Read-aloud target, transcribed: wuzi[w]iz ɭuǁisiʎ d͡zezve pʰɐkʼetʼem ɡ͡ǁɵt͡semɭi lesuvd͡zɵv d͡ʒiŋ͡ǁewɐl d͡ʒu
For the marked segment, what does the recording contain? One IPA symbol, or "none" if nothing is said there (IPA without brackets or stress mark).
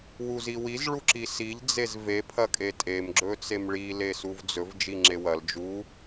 w